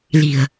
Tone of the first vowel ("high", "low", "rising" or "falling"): low